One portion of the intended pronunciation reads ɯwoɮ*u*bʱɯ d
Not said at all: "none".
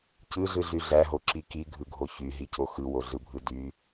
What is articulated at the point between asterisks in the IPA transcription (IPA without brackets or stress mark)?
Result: ɯ